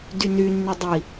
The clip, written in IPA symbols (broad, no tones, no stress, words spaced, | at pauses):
dyny nːydˤi